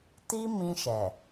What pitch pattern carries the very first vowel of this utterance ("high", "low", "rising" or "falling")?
high